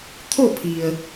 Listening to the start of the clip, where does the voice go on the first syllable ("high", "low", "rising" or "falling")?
falling